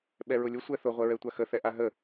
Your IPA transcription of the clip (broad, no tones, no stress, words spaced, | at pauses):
ɓɛɹʊlʲʊ sʷɛθʊ ʁʷɛɹɛtʷaxə θɛʔaɦə